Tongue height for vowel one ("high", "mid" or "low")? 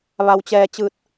low